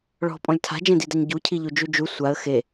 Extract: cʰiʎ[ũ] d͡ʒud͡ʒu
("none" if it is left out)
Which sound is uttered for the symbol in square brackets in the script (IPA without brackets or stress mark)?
u